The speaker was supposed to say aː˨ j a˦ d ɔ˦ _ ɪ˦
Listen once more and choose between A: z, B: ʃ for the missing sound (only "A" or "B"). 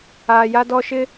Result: B